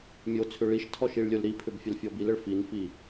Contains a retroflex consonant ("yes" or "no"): yes